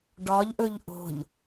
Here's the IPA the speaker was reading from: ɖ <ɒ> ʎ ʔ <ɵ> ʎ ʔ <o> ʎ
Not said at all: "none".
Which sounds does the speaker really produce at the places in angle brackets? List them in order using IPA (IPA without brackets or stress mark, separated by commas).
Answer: ɒ, ɵ, o̤